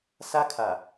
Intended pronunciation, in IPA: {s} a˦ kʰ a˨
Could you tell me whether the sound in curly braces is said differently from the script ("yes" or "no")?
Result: no